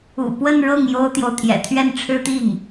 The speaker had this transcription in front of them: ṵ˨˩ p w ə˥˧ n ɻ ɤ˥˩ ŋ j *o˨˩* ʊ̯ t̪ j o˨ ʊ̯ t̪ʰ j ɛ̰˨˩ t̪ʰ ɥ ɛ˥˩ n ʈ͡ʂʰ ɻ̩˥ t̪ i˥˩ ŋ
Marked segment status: incorrect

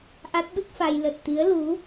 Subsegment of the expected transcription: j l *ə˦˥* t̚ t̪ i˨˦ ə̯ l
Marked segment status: incorrect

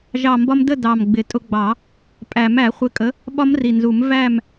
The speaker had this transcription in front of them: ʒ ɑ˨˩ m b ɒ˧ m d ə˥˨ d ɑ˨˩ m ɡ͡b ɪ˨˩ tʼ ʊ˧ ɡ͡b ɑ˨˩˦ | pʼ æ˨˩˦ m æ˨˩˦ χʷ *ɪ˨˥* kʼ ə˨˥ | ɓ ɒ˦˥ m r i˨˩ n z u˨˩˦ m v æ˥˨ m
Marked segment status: correct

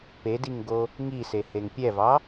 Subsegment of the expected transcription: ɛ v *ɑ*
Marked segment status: correct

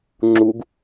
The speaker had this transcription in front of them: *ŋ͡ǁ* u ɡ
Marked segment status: correct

